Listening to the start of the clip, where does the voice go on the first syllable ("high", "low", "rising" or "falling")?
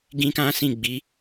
high